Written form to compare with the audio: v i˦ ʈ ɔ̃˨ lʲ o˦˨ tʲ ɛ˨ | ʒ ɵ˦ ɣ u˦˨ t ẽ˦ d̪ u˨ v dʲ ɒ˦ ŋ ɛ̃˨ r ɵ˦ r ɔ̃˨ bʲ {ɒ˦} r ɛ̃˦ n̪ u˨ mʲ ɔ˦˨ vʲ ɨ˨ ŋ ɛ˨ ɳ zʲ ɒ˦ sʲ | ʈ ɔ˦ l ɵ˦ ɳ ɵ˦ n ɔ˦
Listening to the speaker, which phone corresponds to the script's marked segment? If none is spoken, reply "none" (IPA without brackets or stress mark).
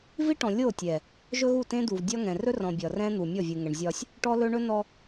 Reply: ɒ˨